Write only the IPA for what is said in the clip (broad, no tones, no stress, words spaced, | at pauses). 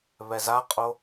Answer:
βɛzaqʼo